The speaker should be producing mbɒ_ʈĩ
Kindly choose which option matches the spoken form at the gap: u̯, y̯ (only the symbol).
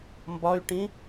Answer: y̯